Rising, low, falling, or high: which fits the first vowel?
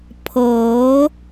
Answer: rising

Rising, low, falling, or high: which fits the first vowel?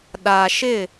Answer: low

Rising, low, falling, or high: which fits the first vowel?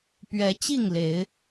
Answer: rising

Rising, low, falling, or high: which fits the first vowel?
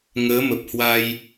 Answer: rising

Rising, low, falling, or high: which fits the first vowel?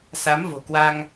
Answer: rising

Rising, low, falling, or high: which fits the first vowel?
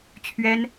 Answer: high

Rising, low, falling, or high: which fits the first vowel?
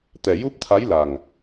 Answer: low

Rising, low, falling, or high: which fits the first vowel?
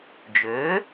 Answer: rising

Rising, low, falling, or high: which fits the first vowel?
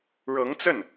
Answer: rising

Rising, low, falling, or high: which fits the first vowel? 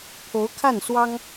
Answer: rising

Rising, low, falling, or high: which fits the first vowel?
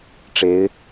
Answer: rising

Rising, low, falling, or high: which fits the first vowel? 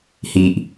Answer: low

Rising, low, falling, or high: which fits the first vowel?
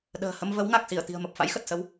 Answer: low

